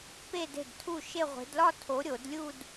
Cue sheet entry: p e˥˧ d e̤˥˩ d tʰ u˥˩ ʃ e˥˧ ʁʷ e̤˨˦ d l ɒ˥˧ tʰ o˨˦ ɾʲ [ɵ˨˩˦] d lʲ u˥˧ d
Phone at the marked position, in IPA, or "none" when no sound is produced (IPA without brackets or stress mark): o˨˩˦